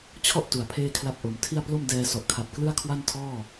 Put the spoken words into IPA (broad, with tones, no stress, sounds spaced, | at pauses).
t͡ɕʰ ɔ˥˩ ʔ t u˩˦ a̯ pʰ eː˥˩ kʰ l a˥˩ p̚ ʔ o˩˦ m tʰ i˥˩ a̯ p l o˥˩ m d ɛː˧ s ɔ˨˩ ʔ kʰ a˨˩ p̚ k l ɯ˥˩ a̯ kʰ w a˥˩ n tʰ ɔː˥˩